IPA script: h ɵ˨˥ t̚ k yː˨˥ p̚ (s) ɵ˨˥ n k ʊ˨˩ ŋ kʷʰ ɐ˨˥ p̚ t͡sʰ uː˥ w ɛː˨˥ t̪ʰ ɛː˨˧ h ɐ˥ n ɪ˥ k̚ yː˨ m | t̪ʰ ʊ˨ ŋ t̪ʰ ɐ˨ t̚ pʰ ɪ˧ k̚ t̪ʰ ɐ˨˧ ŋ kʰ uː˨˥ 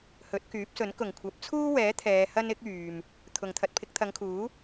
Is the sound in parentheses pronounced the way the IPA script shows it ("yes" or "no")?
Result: yes